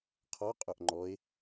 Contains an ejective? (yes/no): yes